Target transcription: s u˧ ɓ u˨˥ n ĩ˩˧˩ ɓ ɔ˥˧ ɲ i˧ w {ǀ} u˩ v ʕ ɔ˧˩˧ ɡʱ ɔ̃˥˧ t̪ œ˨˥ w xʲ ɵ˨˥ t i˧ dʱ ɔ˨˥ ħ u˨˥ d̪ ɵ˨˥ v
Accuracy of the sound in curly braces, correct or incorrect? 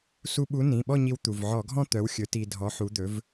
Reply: incorrect